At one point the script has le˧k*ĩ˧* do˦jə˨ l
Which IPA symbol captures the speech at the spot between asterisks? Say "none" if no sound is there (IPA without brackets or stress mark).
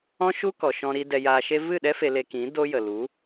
ĩ˨˦